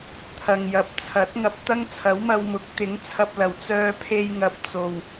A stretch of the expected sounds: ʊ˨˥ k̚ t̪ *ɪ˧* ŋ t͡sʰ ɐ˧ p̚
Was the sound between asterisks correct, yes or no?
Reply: no